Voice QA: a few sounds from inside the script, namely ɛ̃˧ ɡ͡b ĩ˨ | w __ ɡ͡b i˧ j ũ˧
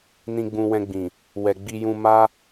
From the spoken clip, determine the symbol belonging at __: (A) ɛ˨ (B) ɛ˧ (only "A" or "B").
A